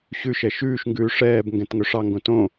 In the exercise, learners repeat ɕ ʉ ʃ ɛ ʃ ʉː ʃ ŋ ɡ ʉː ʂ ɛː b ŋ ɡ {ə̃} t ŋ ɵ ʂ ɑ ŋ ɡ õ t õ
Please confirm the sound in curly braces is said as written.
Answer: no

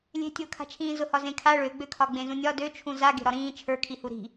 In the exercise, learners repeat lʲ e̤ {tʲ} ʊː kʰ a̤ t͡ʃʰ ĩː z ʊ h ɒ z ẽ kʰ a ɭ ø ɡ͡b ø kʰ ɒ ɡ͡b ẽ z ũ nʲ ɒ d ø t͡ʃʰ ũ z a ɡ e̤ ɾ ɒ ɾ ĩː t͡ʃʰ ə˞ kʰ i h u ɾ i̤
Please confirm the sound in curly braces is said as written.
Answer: yes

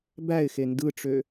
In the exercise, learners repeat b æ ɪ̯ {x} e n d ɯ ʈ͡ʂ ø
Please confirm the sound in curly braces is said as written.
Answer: yes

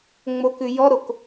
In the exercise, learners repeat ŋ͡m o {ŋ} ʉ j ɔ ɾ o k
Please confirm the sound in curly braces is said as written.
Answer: no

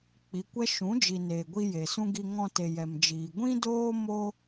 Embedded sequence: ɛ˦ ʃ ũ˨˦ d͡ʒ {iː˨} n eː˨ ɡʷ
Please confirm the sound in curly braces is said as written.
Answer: no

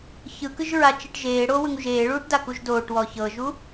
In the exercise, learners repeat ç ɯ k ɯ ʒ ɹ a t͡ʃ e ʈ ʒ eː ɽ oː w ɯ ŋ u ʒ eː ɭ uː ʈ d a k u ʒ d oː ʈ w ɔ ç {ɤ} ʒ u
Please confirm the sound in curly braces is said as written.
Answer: yes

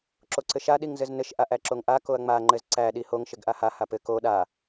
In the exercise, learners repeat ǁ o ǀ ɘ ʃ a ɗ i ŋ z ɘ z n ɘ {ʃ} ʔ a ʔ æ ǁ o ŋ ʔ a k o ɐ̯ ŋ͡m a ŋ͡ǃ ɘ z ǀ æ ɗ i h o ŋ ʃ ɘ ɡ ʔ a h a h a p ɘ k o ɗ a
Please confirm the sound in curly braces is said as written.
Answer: yes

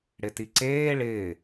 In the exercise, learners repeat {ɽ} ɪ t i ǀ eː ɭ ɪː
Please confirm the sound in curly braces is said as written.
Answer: yes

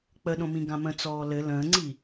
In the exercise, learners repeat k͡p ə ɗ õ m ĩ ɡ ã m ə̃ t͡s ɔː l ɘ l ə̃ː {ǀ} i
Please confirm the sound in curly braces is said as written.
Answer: no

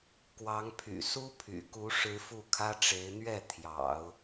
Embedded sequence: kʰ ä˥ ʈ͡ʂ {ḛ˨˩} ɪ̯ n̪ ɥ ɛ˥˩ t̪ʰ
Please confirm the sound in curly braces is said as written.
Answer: no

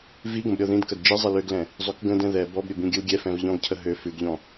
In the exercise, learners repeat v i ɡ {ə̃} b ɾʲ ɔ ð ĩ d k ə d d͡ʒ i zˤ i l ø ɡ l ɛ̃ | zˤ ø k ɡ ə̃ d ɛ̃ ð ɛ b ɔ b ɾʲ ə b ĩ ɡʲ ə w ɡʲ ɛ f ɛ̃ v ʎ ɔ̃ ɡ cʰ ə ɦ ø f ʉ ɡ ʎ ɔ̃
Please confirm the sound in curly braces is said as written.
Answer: yes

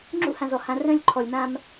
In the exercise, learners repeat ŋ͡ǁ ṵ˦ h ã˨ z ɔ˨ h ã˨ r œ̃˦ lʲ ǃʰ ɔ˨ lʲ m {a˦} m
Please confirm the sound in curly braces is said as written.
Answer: no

